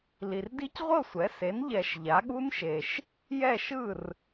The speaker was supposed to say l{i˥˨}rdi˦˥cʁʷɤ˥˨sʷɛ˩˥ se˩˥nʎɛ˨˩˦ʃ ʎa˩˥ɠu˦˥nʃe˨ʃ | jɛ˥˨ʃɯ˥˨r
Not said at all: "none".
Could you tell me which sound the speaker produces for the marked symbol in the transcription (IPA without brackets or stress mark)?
i˨